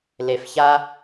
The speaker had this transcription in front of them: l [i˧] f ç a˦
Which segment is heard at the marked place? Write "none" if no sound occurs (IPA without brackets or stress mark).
e˧